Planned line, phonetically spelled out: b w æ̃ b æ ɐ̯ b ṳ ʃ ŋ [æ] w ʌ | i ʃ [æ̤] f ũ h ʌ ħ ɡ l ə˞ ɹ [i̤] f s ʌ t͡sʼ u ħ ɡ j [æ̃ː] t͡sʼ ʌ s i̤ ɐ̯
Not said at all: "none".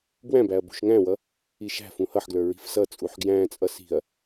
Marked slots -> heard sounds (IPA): æ̃, æ̤, i̤, æ̃ː

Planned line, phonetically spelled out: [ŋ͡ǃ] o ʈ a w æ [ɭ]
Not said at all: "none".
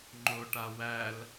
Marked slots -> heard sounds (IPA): ŋ͡ǃ, l

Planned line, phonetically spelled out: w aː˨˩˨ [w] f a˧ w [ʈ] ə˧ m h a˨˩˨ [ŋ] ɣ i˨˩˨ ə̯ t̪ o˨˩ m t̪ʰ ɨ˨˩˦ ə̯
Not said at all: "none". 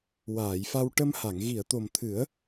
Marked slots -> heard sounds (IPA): j, ʈ, ŋ

